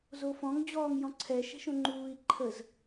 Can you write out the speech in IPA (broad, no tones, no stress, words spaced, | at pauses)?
zofɔ̃ŋ d͡ʑɔːŋjɔ̃ǀʰɛ ʃɛ̤ʃõŋ͡ǃuːi̯ ǃʰəz